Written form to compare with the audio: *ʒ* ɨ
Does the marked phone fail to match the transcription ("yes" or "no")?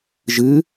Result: no